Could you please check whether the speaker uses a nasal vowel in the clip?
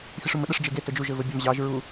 no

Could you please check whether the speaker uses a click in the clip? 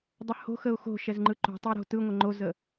yes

